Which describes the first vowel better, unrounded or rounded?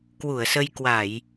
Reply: rounded